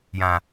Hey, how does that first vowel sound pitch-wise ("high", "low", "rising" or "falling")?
low